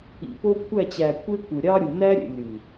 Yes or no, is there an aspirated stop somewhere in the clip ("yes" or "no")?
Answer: yes